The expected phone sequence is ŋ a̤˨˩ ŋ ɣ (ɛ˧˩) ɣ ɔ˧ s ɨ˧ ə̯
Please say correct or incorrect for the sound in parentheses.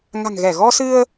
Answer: correct